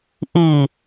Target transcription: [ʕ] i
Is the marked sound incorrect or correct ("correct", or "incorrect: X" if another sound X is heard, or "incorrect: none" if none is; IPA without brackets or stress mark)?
incorrect: ʔ